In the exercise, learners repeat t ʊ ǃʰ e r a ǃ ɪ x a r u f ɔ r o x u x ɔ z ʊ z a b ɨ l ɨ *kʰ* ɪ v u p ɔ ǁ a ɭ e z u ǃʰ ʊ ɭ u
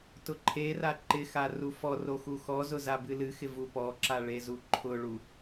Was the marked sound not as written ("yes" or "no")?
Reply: yes